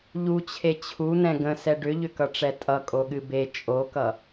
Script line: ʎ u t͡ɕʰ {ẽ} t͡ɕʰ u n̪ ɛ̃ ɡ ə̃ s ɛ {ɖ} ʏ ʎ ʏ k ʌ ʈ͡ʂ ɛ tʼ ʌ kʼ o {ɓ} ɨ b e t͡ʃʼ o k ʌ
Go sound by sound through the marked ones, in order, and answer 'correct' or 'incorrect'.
incorrect: e, correct, incorrect: ɠ

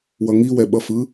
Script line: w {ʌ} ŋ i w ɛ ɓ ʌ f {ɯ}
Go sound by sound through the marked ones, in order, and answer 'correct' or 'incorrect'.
correct, correct

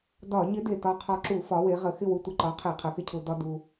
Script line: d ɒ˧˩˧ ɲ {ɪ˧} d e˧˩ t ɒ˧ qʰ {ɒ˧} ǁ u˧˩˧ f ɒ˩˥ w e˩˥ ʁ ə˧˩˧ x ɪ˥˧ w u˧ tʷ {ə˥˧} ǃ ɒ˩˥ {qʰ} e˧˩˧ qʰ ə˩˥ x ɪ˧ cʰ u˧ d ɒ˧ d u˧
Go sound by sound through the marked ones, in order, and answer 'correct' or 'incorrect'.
incorrect: ɪ˧˥, correct, incorrect: ə˧˩˧, correct

